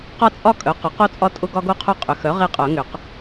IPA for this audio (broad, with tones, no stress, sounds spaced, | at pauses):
q ɒ˦ t͡sʼ ɒ˦ kʼ œ˩˥ q ʊ˩˥ q o˦ t͡sʼ ɒ˦ tʼ ʊ˦ ɡ ɒ˦ ɡ o˦ qʰ o˦ qʼ ʏ˩˥ x œ˩˥ ʁ e˦ qʼ œ˨˩˦ ŋ ʏ˨˩˦ q